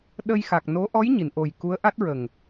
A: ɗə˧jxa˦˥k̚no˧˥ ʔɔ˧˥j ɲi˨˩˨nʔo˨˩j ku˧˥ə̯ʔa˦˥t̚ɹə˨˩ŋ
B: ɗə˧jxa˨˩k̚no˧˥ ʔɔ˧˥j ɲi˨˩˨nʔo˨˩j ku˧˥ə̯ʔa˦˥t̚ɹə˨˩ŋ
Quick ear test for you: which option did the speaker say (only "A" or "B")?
B